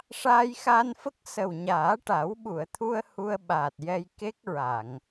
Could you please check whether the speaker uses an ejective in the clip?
no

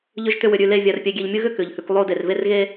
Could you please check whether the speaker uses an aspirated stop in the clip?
no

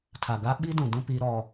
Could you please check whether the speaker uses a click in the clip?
no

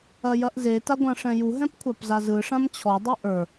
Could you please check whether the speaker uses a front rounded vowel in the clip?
no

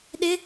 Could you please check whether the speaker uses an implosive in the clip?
yes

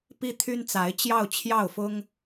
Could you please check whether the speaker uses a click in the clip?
no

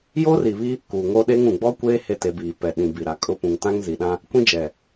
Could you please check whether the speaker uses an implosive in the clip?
yes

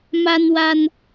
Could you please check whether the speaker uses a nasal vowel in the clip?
no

